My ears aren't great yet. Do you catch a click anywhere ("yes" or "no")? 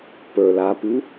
no